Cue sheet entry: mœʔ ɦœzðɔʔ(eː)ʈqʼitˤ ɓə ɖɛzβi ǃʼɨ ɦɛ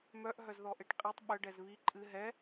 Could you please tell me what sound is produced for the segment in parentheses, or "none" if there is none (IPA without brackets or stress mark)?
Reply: e